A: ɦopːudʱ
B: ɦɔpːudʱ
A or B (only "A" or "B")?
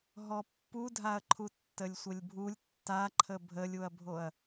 B